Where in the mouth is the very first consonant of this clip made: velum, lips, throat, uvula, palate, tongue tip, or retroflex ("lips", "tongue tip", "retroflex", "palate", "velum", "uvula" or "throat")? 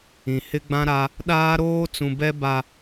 throat